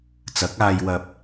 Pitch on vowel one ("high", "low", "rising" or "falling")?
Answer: rising